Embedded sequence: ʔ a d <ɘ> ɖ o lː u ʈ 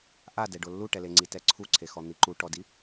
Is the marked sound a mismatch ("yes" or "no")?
yes